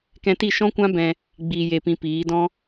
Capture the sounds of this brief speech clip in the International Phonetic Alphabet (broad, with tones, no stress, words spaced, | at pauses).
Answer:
kɛ̃˧ti˦˨ ʃɔ̃˦kʷã˦ bɛ̃˧ | ɡ͡biː˨je˨pĩ˨ piː˨˦ dɔ̃˦